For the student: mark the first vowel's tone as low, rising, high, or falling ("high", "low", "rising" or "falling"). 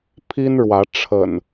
high